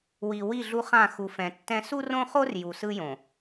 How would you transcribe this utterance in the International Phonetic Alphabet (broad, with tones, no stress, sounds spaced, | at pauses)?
w i˨ w i˦˨ ɮ u˦ χ ã˦˨ x u˨ f ɛ̃˨ tː ɛ̃˦ s u˦ r õ˦ χ o˦ r j u˨ s ɯ˦ j õ˨